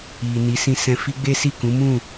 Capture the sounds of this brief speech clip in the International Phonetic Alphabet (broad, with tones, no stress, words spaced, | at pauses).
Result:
i˨ ni˨˦sĩ˧sɛ̃˧ fi˦ɡ͡be˦si˦˨ kũ˨˦mũ˦˨